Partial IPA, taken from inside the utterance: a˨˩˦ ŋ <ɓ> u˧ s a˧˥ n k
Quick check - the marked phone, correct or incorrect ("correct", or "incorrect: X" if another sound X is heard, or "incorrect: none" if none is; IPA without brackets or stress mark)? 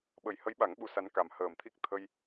correct